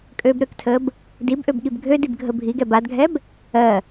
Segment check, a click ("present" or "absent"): absent